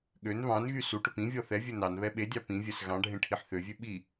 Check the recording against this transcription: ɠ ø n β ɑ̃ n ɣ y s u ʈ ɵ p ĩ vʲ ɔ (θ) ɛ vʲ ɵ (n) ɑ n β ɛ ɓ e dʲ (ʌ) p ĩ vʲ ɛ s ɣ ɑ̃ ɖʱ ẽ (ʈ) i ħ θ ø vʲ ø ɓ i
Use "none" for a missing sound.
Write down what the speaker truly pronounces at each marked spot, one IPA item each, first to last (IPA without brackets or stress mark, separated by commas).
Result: θ, n, ɑ, ʈʰ